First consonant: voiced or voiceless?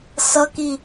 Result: voiceless